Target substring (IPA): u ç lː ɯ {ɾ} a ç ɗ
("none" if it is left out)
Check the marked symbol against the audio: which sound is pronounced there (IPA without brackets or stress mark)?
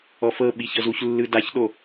d